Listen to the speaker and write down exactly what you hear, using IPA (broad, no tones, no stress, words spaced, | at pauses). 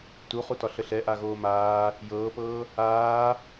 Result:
tuχutɒ ɬəɬɛ ʔaɣoːmaː | jɤːpɤː | aː